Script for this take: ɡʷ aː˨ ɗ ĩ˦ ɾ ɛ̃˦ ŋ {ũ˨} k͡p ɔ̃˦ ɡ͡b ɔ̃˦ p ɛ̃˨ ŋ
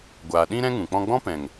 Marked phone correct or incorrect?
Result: correct